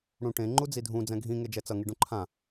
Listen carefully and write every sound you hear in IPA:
ɽ ũ ʈ ẽ ŋ͡ǃ u d͡z i dʱ ũ d͡z ɛ̃ ɡʱ ĩ ŋ e d͡ʒ ɛ t͡s ʌ ŋ i ɖ ũ ǃʰ ã

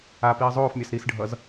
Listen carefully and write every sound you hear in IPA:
a p iː zˤ oː f mʲ a s ɾ i s ɖʱ ʌ z

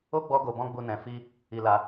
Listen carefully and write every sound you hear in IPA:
o˦ ɡ͡b ɔ˦ ɡ o˧ b ɔ̃˦ ɡ͡b u˧ n ɛ̃˧ f i˦ | i˧ l a˧

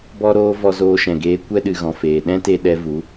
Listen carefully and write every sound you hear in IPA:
b ɔ˦ ɾ oː˦ v ɔ˧ z oː˧ ʃ ɛ̃˨ ɡ eː˧ kʷ ɛ˦ ɗ ɨ˨ ɣ ɔ̃˨ f eː˨ ɗ ɛ̃˦ t e˧ ɗ ɛ˧ v u˨˦

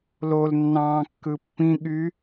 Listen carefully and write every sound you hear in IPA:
l o l nː ɑ̃ː kː ɯ pː ĩ ɠ y

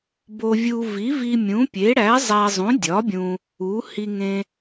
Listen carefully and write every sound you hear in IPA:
b o˧ vʲ u˧ v i˨˥ v i˧ mʲ ũ˨˥ pʲ e˨˥ ɽ æ˨˥ zˤ æ˧ zˤ ũ˨˥ dʲ ɒ˨˥ bʲ ũ˧ | u˨˥ h i˧ ŋ ẽ˧

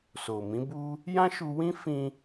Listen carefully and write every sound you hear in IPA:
s o˨ m ĩ˨˦ b u˦ | j ã˦ ʃ u˧ w ĩ˦ f ĩ˧

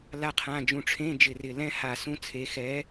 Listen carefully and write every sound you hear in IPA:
l a˥ qʰ ã˧˥˧ d͡ʒ ũ˧˩ ʈ͡ʂʰ ẽ˧˥˧ d͡ʒ ɪ˧˩ r ɪ˧˩ l ɛ̃˥ h a˧˩ s ũ˥ t͡sʰ e˨˥ x ɛ˨˥

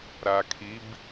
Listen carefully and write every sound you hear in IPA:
ɾ a kʰ i b

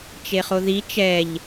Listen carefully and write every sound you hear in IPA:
t͡ʃ e χ o ð i t͡ʃ ɛ ʎ

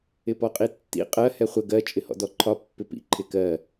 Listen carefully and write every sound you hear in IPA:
ɪ p ɔ qʼ i tː ḭ qʼ ɜ h ɛ χʷ ə ɡ ɜ t͡ʃʼ ɪ h ɔ̰ d ɔ ǃʰ ɒ pː ɪ p ḭ ǃʰ ɪ k ɜ

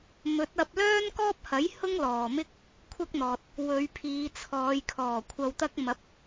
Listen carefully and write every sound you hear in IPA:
m ɵ˨˥ t̚ ɐ˧ p̚ l œː˥ n k ɔː˥ p̚ h ɐ˨˥ j h ʊ˥ ŋ l ɔː˨ m ɪ˥ k̚ | kʷʰ ɐ˥ k̚ n̪ ɔː˨ t̚ | w ɵ˨˧ ɥ pʰ iː˨˧ t͡sʰ ɔː˨˧ j kʰ ɔː˨˩ kʷʰ ɐ˨ w t̪ ɐ˧ k̚ m ɐ˨˥ p̚

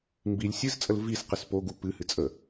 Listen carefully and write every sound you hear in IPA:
m b i lʲ sʲ ɨ z t͡sʼ ə l v i s q ɨ s p o ɡ u p ɨ h ɨ t͡sʼ ə

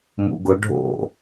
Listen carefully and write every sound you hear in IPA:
m ṵ ɡ ʊ ɖʱ o̰

